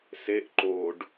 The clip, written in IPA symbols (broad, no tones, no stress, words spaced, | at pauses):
seʔ ǃoɖ